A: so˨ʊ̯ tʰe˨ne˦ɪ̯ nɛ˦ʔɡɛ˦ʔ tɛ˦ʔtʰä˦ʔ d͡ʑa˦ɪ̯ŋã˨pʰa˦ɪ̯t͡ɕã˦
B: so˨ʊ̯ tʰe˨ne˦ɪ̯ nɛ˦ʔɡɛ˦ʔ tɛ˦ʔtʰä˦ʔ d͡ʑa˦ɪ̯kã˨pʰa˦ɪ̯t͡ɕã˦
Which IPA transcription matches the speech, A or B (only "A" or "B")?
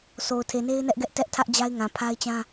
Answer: A